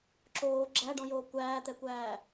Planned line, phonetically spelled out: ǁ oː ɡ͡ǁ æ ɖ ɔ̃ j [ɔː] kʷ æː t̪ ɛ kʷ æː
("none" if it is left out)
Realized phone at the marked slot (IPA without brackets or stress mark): oː